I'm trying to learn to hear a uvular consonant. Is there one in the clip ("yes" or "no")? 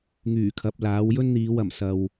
no